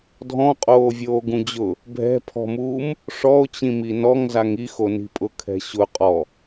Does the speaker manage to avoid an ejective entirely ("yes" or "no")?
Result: no